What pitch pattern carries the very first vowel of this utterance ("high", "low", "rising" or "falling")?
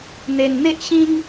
low